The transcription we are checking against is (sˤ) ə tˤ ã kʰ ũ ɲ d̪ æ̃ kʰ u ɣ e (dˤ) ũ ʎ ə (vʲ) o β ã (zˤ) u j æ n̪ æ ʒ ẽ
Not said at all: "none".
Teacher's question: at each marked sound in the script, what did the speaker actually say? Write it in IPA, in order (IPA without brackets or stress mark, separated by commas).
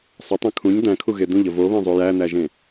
sˤ, d̪, v, zˤ